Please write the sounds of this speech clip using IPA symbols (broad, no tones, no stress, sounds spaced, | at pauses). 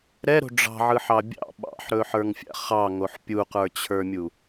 ɾ ɛ ɾ o̤ ɖ͡ʐ ɑ̤ ʕ ɯ ħ ɑ bʲ ɑ̰ ɓ ɑ̰ ħ ɾ ɵ ħ ə˞ ŋ fʲ a̰ χ ɑ ŋ o ħ pʲ u q ə˞ t͡ɕʰ ə˞ mʲ u